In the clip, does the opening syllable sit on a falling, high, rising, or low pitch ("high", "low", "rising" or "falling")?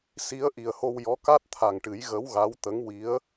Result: rising